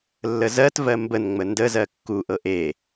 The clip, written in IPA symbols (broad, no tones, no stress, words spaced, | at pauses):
lːəzɜtvɜ mbənŋ͡mə ndəzɜ kːuʔɤ ʔe